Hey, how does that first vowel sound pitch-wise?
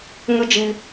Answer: high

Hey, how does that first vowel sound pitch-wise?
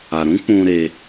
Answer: low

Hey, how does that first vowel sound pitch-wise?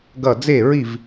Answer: falling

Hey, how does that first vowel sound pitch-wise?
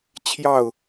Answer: falling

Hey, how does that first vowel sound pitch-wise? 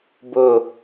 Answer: falling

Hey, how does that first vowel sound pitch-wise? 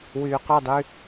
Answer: low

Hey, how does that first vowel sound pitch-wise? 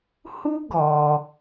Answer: high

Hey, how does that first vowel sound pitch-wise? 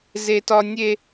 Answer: high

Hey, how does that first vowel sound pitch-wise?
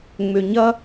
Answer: low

